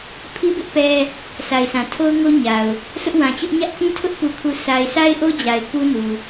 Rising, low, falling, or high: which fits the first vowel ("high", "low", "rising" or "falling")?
high